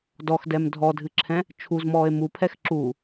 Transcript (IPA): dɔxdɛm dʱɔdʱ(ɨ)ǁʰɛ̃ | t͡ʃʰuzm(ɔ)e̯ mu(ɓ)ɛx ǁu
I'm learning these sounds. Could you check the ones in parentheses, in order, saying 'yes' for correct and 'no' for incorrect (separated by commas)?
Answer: yes, no, no